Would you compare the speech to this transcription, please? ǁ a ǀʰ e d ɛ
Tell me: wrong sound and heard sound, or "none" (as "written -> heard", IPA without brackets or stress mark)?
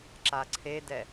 none